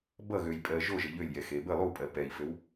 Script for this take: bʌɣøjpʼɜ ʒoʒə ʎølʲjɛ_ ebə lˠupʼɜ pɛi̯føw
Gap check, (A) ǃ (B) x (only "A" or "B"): B